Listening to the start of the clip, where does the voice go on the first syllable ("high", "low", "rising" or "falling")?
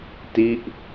falling